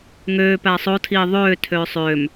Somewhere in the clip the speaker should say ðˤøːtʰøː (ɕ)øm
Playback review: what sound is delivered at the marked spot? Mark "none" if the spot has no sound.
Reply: sˤ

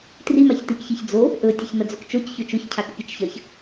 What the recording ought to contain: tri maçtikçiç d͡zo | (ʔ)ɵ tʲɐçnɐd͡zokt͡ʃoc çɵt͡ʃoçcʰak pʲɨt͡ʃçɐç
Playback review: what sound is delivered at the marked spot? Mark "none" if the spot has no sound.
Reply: ʔ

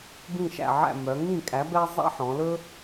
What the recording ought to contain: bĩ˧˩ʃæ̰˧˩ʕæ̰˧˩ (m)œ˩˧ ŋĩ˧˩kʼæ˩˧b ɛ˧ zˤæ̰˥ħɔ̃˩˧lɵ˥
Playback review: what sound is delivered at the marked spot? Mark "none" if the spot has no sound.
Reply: m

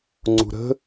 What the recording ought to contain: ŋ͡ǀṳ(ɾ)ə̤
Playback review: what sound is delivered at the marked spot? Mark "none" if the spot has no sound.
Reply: ɾ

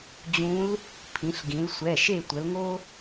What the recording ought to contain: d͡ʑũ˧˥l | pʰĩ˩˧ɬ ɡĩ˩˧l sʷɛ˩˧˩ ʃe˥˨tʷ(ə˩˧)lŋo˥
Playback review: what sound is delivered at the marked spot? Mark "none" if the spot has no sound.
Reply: ə˩˧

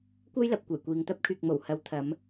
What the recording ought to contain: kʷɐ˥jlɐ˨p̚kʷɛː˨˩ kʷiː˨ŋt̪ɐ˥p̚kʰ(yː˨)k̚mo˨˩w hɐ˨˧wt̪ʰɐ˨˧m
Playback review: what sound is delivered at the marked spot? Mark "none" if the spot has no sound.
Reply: yː˨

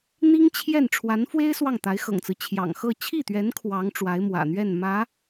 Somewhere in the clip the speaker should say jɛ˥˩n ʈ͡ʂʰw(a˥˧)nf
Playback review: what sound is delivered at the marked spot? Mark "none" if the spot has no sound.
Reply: a˧˥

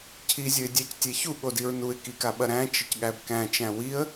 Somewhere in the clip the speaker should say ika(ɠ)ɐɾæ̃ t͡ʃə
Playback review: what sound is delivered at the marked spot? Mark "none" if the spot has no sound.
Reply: ɓ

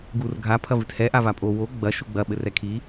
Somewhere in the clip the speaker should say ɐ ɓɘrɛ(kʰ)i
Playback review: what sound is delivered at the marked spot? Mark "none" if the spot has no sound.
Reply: kʰ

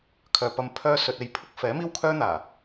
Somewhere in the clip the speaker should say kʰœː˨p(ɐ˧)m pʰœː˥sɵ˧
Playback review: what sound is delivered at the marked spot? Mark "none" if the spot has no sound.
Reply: ɐ˧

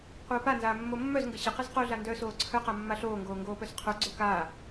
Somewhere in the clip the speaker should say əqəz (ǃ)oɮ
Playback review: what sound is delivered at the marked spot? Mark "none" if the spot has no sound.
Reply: q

